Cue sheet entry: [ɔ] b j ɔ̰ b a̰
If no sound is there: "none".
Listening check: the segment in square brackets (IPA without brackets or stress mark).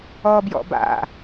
ɔ